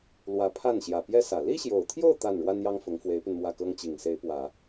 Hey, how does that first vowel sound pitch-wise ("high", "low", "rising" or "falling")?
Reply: rising